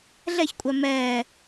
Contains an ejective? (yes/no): yes